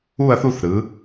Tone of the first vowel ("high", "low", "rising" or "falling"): falling